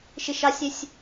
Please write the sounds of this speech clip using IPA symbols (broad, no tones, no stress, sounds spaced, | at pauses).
ʃ ɪ ʃ ɑ sʲ ɛ sʲ